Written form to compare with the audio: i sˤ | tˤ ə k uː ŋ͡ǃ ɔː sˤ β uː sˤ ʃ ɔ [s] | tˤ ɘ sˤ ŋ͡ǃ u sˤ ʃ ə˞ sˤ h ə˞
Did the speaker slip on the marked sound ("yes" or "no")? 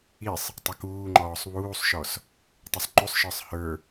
no